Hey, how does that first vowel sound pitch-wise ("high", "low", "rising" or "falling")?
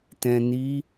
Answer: low